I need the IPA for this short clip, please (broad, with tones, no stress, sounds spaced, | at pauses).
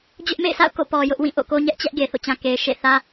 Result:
d͡ʑ ʊ˦ ʔ m ḛ˦˨ ɪ̯ sʰ a̰˦˨ ʊ̯ k o̰˦˨ p ɔ˨ j ʊ˦ ʔ w ĩ˦˨ ʔ o̰˦˨ k o˦ ɲ ɛ˦ ʔ t͡ɕ ɛ˦ ʔ ɡ e˨ θ o̰˦˨ t͡ɕ ã˨ k e˨ ɪ̯ ʃ ḛ˦˨ θ ä˦